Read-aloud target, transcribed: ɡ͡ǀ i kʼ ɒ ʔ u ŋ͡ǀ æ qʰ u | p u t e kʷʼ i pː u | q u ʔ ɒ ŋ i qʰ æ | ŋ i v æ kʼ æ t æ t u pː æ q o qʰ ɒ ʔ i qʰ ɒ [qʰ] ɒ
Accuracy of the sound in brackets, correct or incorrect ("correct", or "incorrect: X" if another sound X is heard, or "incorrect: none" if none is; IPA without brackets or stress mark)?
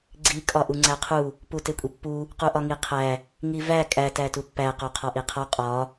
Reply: incorrect: qʼ